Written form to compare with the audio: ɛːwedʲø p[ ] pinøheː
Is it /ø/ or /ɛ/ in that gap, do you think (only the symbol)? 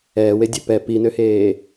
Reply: ɛ